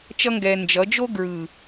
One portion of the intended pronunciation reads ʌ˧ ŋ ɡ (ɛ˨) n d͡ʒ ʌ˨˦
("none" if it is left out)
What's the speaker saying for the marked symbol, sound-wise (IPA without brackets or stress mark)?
ɛ˨